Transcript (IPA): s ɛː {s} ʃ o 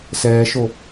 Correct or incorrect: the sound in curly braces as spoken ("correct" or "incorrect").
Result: incorrect